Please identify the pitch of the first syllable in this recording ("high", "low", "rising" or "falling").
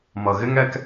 low